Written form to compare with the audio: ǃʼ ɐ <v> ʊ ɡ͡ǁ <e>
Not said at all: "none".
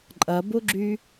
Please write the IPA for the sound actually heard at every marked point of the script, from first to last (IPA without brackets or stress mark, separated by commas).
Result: b, y